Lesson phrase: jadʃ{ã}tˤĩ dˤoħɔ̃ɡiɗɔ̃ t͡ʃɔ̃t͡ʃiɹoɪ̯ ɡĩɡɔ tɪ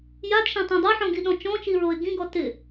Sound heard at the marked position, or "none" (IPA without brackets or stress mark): ã